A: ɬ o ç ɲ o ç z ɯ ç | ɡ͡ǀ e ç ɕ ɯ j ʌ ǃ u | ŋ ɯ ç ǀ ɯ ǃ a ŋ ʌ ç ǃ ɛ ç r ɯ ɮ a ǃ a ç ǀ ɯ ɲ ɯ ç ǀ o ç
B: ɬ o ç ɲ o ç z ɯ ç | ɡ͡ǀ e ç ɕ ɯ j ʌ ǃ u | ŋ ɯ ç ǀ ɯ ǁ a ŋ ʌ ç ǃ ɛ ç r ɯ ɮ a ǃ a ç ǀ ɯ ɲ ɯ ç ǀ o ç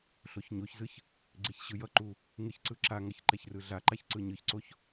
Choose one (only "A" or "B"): B